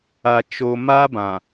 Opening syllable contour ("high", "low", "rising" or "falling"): low